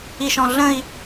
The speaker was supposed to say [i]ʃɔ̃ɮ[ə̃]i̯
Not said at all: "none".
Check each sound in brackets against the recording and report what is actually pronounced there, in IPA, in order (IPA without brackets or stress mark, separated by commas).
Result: i, ə̃